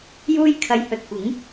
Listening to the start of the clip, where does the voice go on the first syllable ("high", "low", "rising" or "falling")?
high